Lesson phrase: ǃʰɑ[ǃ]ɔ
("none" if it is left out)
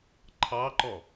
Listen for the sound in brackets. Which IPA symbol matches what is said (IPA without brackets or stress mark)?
ǃ